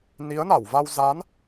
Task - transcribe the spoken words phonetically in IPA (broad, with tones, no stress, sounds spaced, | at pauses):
n i˨˦ ə̯ n a˧˩ w v a˧ w z a˨˦ n